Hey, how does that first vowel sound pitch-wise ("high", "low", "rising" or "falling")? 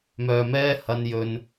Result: low